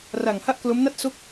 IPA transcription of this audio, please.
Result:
r a˨˩ ŋ h a˥˩ ʔ k l o˦˥ m n a˥˩ t̚ s o˦˥ k̚

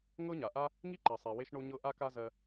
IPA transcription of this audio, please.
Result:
ŋ ɤ˦ ɲ a˨ ʔ a˦ | ŋ i˦ ǃ ɜ˨ sˤ e˨ w e˧ ʃ ɳ o˧ ɲ ɤ˧ ʔ a˦ k a˦ z ɜ˧

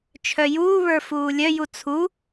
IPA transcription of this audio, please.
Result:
t͡ʃʰ œ j uː β ə˞ f uː lʲ œ j u t͡sʰ u

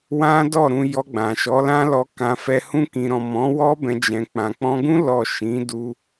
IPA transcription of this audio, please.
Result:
w ã˦ d ɔ˦˨ ɾ ũ˧ j ɔ˧ ɡ͡b ã˨ ʃ ɔ˨˦ l ã˦ l ɔ˧ k ã˧ f ɛ˧ h ũ˧ k ĩ˨ ɾ ɔ̃˨ m ɔ̃˨˦ w ɔ˦ b ɛ̃˧ d͡ʒ ɛ̃˧ k͡p ã˨ k͡p ɔ̃˧ ɡ ũ˦ l ɔ˦˨ ʃ ĩ˨˦ d u˦

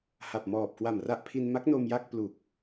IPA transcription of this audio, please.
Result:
h a˨˩ p̚ m ɔː˨˩ p̚ k w a˨˩ m r a˥˩ ʔ pʰ i˧ n m a˦˥ k̚ n o˧ m j a˥˩ k̚ p l u˨˩ k̚

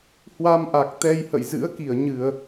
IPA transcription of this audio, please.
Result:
h w a˧ m ʔ a˨˩ k̚ t̪ ɛ˧ j h ə̰˧˨ j z ɨ̰˧˥ ə̯ k i˧˩ ə̯ ɲ ɨ˧˩˨ ə̯

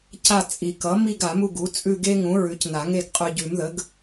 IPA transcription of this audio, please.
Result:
c a˦˨ t͡sʼ i˨˩˦ k ʌ˩˥ m i˦˨ ɡ a˨˩˦ m u˦˨ ɡ u˩˥ t͡sʼ ʉ˦˨ ɡ e˦ ŋ ũ˩˥ ɹ ʉ˩˥ c n a˨˩˦ ŋ e˦˨ ɡ qʼ ʉ˨ ɟ ʉ˨˩˦ m ð ə˩˥ ɡ

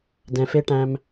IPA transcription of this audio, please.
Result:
d ɛ̃˧ f e˦ ʈ æ̃˦ m

